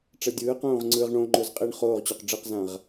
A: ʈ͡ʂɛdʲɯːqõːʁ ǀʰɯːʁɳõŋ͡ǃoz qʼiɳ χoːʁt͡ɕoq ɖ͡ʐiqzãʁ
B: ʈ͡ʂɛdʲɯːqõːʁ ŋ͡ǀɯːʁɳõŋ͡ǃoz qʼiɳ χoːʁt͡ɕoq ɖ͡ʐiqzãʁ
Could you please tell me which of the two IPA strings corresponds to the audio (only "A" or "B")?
B